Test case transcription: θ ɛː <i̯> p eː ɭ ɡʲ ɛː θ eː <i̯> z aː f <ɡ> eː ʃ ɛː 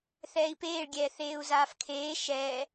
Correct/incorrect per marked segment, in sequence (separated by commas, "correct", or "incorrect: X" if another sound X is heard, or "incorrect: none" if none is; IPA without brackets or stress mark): correct, incorrect: u̯, incorrect: kʰ